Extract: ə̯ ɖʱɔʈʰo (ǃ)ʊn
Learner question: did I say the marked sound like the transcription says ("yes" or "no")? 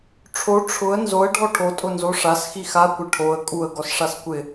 no